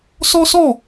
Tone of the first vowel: high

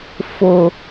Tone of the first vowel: low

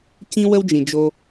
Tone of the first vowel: high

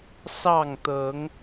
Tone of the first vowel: falling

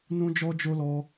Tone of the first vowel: high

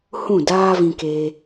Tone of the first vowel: falling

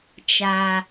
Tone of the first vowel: low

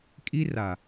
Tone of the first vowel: high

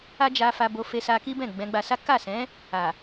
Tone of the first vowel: high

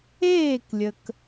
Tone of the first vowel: falling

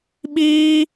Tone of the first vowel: high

